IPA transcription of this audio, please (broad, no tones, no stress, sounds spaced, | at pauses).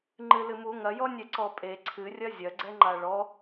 ŋ͡ǃ ɨ l ɨ m u ŋ ɐ j ɔ nʲ ɛ ǀ ɔ pʼ e ǀʰ ɨ rʲ ɐ zʲ ɐ ɡ͡ǀ ɛ ŋ͡ǃ a ɭ ɔ